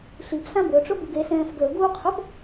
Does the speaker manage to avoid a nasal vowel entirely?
no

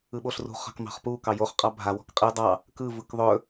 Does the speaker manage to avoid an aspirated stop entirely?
yes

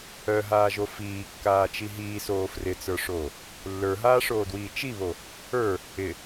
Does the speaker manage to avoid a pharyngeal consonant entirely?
yes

